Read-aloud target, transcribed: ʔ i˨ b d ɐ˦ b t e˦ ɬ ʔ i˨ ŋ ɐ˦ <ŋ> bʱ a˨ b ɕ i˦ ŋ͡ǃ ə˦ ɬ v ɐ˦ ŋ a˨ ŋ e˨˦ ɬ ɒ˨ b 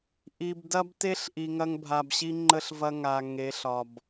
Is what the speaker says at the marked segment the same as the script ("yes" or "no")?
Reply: yes